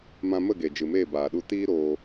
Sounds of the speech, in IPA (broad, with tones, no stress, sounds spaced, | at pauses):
m ã˧ m ə˦˨ ɡ e˨ d͡ʒ ɨ˨ m eː˦˨ b aː˨ ɗ u˧ t iː˦ ɾ oː˧